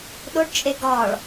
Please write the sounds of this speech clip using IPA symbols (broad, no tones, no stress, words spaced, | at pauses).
ɗoɖt͡ʃʼe ɡɒɭ